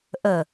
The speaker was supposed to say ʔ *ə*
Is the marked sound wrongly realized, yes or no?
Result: no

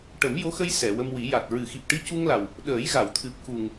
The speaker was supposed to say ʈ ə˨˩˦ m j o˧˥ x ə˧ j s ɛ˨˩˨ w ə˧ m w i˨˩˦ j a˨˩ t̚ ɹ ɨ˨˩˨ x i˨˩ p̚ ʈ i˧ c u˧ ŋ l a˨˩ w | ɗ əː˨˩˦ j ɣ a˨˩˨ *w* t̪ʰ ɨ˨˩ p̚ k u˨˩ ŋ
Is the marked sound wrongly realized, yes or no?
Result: no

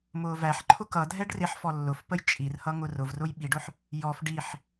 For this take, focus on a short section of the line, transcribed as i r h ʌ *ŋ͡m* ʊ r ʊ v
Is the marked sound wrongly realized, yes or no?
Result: yes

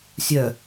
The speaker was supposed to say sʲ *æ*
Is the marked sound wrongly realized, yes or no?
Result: yes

